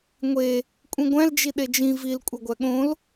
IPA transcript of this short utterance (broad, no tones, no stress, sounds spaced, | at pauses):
ŋʷ e | kʷʼ ĩ ɡʷ æ̃ l d͡ʒ i ɗ e d͡ʒ ĩ v i l kʷʼ e ɡʷ æ ɠ õ l